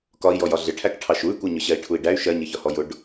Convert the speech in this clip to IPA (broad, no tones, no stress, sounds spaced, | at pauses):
k ɒ i̯ j ɔ j ɒ ɮ ɪ ʈʰ æ k ʈʰ ɑ ʃ u y̯ kʷ ɜ ɲ ʊ ɕ ɜ i̯ ʈʰ u i̯ ɖ æ y̯ ʃ ɜ ɲ ɪ ç ɒ h ɔ j ʊ ɖ